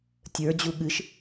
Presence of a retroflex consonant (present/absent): absent